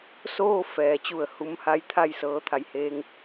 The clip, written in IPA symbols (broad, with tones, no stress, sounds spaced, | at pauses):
s oː˥˨ f ɛː˩˧ t͡ɕ u˧˩ ə̯ h u˧ m h a˧˥ j t̪ʰ a˥˨ j s ɤː˧ t̪ʰ a˩ j h eː˧ ŋ